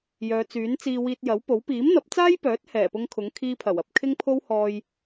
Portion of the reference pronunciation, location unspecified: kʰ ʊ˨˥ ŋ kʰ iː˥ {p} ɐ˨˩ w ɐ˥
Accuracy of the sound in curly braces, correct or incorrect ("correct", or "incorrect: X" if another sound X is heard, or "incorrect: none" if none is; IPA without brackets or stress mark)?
incorrect: pʰ